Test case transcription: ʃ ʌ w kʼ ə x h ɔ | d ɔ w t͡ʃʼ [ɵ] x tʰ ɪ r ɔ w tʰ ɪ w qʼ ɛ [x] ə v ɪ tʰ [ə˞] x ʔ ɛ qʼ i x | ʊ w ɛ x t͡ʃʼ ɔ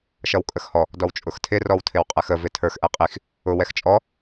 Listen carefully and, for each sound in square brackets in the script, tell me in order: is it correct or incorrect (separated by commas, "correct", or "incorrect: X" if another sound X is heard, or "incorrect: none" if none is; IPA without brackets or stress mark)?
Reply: incorrect: ʊ, correct, correct